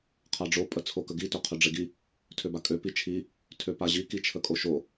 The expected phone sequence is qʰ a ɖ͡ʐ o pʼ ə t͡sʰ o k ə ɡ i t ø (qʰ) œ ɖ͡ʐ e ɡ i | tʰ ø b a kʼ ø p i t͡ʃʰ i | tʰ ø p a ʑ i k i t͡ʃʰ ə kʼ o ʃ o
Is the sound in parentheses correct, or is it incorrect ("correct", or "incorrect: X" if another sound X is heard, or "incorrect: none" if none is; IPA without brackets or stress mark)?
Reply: correct